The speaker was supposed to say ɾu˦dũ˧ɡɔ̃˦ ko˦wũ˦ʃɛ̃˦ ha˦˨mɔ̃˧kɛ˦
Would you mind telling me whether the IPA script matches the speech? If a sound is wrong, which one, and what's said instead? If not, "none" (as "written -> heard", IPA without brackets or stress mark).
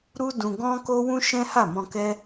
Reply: none